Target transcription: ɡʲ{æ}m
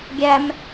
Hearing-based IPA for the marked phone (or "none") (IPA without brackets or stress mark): æ